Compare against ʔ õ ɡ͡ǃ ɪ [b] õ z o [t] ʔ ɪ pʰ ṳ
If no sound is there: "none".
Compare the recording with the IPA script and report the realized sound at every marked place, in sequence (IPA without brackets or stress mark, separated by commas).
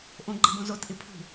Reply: b, t